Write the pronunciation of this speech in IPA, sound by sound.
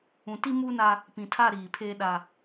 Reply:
ũ˨ti˦muː˦na˦ | pĩ˨tʰa˦˨ɾiː˨pʰeː˦ ɗa˦

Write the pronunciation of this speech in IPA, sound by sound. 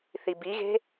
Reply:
θibiɣe̤

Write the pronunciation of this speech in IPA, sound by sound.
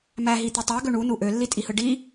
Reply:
mæɦit̪ɯ tˤæɡø ɳunu ʔølːitʼihɯ ɖi

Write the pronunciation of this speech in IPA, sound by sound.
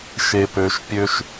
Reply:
ʃe˨pø˨ʃpʲø˦ʃ

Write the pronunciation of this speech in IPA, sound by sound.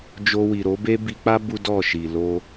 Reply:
d͡ʒo˧wi˨ ɾo˨˦be˦ bi˧k͡pa˦ bu˦dɔ˦˨ʃi˨ lo˧

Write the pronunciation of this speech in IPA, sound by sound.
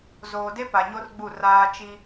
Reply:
zoː˨de˦ pa˨ɲo˦rɡ͡bu˦˨ raː˦ t͡ʃi˦

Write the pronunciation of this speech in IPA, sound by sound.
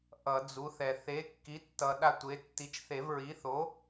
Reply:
ʔʌ˨˩˦d͡zu˩˥θɛ˨ θe˩˥kːi˩˥tːʌ˨ ɗa˦tʷe˩˥ tːi˩˥t͡ʃθe˨˩˦vɹi˩˥θo˩˥

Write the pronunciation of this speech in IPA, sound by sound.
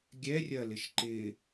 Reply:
ɡʲɛrʲɐlɪʃ ǃɪ

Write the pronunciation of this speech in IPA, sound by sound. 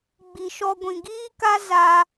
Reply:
ɡ͡bi˨ʃɔ˧ɡʷĩ˨ ɡiː˦ka˦ za˦

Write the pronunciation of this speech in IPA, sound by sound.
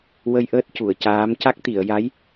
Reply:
wə˧jʔəː˦˥t̚ cu˨˩˨ə̯caː˧˥m ca˦˥k̚t̪i˨˩˨ə̯ja˧˥j

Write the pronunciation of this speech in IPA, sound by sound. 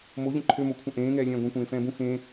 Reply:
moʎə̃ ǃʰømokʷʰə̃ ʔẽːŋɛːlʲɛ̃ː ɡʷẽkʷẽː fɛ̃ːbũ xẽ

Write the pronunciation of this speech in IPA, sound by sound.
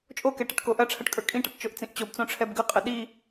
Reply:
t͡ʃʼokɛ ʈəʈkoʔɐʈ͡ʂʰɐʈ kʼə˞kʼĩʈɤʈ t͡ʃoʔt͡sĩʔt͡ɕobt͡sõ ʈ͡ʂʰɛbɡəqʼə ɗi

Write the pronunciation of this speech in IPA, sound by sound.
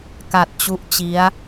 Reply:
ka˨˩t̚t͡ɕu˦˥ʔ t͡ɕi˦˥a̯

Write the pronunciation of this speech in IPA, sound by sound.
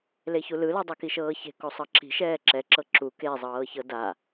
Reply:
leçulɯlɤ dˤɤkiʃɤːçe̤ kosˤɤǁi̤ ʃɛːǁɛǁɤ ǁu kezˤɤːçɤ da

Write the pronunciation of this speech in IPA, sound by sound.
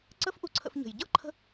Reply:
ǀə˥fʔu˧ǀʰə̰˧fɲə̤˩j ɟɤ˥ǃʰə̤˧

